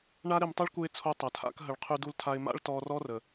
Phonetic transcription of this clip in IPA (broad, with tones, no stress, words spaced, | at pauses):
ɳa˦ɾɪ˧m tˤo˦ɭku˧ɪ̯t͡sʰo˧ tˤɐ˨tʰa̰˦kɦə˧ɭ qʰy˧du˧ltʰa˧ɪ̯ ma̰˦ɭtɔ˧rɔ˦rə˨